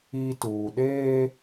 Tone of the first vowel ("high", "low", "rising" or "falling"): high